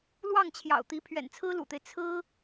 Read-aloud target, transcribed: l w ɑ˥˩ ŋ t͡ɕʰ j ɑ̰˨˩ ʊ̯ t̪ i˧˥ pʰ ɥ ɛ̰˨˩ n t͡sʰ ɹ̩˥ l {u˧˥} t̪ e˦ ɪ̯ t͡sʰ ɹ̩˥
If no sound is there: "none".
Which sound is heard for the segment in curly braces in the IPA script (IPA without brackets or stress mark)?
ṵ˨˩